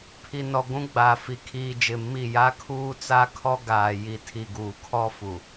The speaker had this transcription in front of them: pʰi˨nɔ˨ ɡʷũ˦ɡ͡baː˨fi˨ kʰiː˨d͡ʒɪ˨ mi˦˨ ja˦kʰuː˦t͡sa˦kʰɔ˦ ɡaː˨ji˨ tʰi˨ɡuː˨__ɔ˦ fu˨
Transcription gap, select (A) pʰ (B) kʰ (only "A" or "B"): B